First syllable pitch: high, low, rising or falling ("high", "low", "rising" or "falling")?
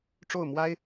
falling